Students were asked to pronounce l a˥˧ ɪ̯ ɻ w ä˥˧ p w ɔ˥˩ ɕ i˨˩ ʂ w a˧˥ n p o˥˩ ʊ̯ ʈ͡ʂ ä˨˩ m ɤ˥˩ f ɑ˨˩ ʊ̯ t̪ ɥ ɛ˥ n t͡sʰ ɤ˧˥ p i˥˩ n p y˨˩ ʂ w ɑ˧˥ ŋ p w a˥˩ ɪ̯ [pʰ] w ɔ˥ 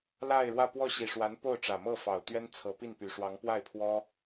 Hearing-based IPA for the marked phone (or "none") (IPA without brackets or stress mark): pʰ